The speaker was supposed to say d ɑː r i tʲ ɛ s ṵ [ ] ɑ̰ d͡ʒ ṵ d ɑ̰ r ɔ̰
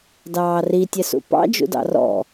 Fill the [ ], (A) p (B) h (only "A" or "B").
A